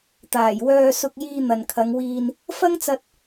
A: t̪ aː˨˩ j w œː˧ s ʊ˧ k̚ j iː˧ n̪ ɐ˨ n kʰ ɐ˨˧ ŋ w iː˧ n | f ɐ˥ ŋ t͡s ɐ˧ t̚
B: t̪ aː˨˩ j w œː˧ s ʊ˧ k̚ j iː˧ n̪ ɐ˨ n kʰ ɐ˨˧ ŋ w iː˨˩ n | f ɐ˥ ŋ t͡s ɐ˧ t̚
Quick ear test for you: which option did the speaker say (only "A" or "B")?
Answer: A